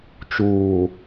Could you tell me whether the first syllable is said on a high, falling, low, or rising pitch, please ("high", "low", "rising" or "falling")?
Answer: low